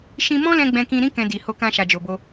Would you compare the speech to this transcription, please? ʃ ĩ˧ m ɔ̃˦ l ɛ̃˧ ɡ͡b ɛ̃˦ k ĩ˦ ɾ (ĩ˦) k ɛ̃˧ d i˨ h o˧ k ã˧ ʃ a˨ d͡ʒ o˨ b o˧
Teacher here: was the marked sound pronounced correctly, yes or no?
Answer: yes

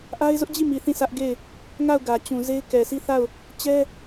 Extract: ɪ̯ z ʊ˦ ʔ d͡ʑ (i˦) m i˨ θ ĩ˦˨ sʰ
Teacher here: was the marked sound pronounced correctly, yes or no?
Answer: no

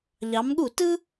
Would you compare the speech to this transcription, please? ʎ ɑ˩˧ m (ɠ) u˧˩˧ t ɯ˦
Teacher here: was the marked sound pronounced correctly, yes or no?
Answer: yes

